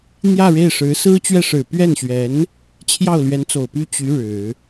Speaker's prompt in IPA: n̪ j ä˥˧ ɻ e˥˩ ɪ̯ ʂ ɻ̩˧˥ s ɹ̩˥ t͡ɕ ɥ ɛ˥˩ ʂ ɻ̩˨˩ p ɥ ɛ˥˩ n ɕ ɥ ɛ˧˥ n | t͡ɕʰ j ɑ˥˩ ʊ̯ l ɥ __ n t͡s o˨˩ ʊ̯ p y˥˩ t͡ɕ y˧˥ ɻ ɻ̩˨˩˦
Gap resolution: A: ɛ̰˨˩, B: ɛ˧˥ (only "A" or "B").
B